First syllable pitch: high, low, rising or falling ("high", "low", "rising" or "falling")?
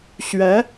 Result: rising